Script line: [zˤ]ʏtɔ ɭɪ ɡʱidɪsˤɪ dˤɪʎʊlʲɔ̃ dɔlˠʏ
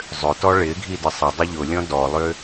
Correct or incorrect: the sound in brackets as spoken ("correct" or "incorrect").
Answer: correct